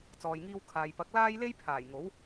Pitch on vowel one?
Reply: low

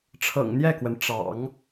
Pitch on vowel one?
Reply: low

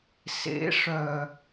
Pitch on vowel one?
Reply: rising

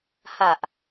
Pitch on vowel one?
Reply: low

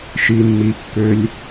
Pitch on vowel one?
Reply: low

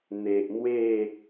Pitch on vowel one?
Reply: low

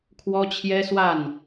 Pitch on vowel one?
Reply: high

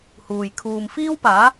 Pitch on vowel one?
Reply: low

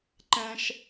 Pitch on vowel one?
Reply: low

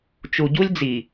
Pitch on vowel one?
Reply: low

